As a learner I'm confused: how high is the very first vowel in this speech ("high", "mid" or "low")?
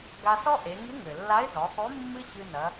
low